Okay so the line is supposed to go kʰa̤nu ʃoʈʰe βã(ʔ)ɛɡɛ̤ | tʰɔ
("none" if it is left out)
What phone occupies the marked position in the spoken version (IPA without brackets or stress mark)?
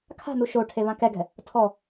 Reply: k